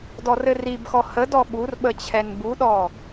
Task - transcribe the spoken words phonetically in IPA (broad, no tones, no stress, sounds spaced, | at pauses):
d ɔ r ɘ r i b x ɔ h ə d ɔ ɓ u r ɓ ə t͡ɕʰ ɛ n b u ɗ ɔ